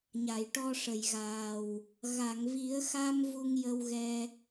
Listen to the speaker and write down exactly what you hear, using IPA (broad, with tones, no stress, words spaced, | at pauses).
ɲa˨˩˨jʈɔ˧ʂə˨˩˨jɣaː˨˩w | ɣa˨˩˨ŋvi˨˩˦ə̯xa˧m vu˧ŋjə˧wɣɛ˧